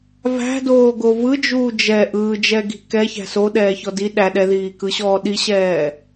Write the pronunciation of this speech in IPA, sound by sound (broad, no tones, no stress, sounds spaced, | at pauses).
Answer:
v æ̤ d oː ɡ o v ɯ d͡ʒ uː d͡ʒ ɛ ʔ ɯː d͡ʒ ɛ ɡ i̤ k ɛ ç æ̤ s o ɗ ɛː ç ɔ d i ɗ æ ɗ ɛ ð iː k ɯ ɕ ɔː ɗ i ɕ ɛː